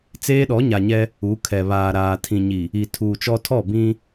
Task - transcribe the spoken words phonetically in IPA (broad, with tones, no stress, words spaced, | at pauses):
t͡seː˦ɗɔ˨˦ɲa˨ɲɛ˦ | u˨˦kʰɛ˨βaː˨ɾaː˨ tʰĩ˨ɲi˨ | i˨ tʰuː˨t͡ʃɔ˦ tʰɔ˦˨bĩ˦